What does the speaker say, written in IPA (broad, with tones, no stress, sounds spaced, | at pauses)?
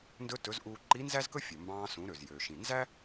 n d ɵ˧ t ɵ˩˧ z ʔ uː˧ ǃ i˧˥ n z æ˥ z k ɵ˥ fʲ ɵ˩ m b ɑ̃ː˧ s ũ˩˧ ɾ ø˩ z j ø˩ ʃ ĩ˩ n z æ˥